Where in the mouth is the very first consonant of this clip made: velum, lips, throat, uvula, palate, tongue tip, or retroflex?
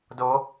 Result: tongue tip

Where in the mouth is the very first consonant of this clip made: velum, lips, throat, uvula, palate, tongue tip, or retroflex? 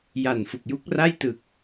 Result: palate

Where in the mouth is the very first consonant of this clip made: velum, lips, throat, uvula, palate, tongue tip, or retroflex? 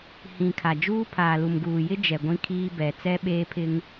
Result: throat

